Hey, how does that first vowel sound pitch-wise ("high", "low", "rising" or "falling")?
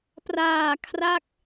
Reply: low